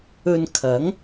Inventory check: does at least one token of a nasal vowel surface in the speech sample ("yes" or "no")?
no